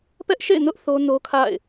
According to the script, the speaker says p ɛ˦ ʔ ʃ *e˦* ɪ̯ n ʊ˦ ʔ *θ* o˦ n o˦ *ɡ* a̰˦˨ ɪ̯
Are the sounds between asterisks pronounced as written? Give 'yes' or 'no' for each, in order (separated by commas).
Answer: no, yes, no